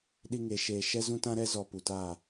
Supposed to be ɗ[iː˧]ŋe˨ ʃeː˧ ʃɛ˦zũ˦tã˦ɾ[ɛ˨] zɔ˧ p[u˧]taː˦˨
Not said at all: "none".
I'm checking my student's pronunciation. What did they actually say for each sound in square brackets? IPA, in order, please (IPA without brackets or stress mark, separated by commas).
i˧, ɛ˦, u˨